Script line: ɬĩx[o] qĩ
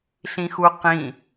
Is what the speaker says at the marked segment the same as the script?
no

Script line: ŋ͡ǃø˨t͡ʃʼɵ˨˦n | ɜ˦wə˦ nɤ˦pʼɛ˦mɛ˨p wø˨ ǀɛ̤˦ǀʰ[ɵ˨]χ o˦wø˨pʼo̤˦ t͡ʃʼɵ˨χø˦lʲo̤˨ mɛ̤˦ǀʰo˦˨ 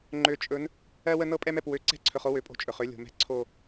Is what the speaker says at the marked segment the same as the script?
yes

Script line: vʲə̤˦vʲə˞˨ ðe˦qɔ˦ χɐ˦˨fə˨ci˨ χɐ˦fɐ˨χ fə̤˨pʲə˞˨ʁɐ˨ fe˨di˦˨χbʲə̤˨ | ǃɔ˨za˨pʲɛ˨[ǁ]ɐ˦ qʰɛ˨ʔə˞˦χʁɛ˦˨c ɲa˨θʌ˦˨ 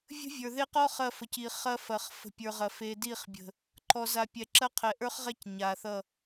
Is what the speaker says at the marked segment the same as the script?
yes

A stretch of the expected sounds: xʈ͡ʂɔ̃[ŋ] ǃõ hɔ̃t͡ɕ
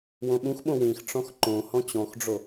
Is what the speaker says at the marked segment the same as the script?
no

